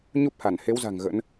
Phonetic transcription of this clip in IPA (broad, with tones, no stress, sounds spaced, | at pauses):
ɲ u˦˥ p̚ h a˧˩ n h e˨˦ w z a̤˨˩ ŋ ɣ ə̰˧˥ n